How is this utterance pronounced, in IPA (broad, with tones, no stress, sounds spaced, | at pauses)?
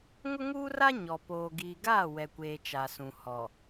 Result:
ŋ ʊ˦ ŋ uː˦ r a˦ ɲ ɔ˨ p oː˨ ɡ iː˨ ɡ aː˦˨ w ɛ˨ kʷ eː˨ t͡ʃ a˨ s ũ˨ h ɔ˨